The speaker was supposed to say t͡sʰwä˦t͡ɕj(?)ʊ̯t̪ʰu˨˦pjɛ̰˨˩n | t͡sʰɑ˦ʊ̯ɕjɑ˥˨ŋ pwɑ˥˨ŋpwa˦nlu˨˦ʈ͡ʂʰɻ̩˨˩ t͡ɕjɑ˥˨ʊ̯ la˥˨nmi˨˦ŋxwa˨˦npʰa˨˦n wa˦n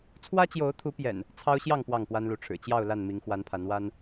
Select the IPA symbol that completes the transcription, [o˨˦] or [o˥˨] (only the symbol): o˨˦